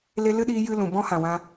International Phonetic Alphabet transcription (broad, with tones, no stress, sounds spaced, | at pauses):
l e˧ l ɨ˦ ɗ iː˧ j ɨ˦ l ũ˨ b ɔ̃˦ h ã˨ w ã˧